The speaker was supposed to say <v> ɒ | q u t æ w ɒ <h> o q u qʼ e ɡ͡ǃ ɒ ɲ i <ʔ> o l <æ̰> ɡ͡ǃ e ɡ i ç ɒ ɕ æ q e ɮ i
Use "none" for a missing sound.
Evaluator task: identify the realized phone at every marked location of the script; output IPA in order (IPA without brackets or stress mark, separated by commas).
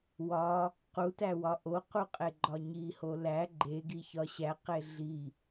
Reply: w, ʔ, h, æ